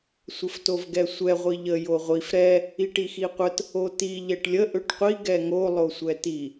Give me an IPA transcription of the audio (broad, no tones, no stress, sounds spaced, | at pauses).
sʷ ə f t o v ɡ ɛ sʷ ɛ ʁʷ i ʎ ə j o ʁʷ i f ɾ ɛ | i ʈ i x i qʷ ə t | o t i ʎ ɛ ʈ lʲ ə ʔ ø ʈ qʷ i ɡ ɛ ŋ o lˠ o sʷ ɛ t i